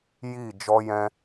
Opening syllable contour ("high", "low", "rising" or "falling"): falling